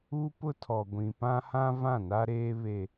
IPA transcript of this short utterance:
u˦ p ʊ˦ tʰ ɔ˨ ɡʷ ĩ˨ p ã˦ h ã˦ v ã˦˨ n a˦ ɾ eː˦ β e˦

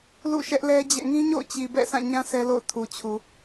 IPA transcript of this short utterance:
l ṵ˦˨ ʃ ɛ˦ ʔ l ɛ˦ d͡ʑ ɛ̰˦˨ ŋ ĩ˦ ɲ o̰˦˨ ʊ̯ t͡ɕ i˨ b ɛ̰˦˨ sʰ ã˦˨ ɲ ã˦ sʰ ɛ˦ l o̰˦˨ ʊ̯ tʰ u˨ t͡ɕʰ u˨

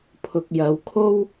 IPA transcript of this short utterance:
pʰ ʊ˨ k̚ j ɐ˨˧ w kʰ o˥ w

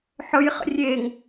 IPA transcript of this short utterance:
ħ ɵ j χ ə̰ rʲ e ŋ

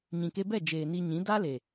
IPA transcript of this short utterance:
ɲ ĩ˨ k e˧ b ɛ˦˨ d͡ʒ eː˨ n i˧ ɲ ĩ˨˦ d a˦ l e˨

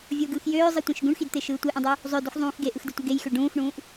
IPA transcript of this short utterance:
vʲ o ɡ ɯː x j øː zˤ i tʷ ẽ ʃ ɡ ũ ɳ x i d t̪ e ʃ ɯː tʷ e ʔ ũ dˤ u | zˤ ø d u x zˤ ũː x ɡ e ʔ ɯ x d ɯ tʷ i ɡ e j x ø ɖ ũː x ɳ ũː ʔ

